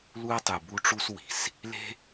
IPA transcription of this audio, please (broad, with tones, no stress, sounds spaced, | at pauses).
l u˦ ɐ̯ tˤ ɯ˨ b u˦ ʈ͡ʂ u˦ s w i̤˨ s | l e̤˦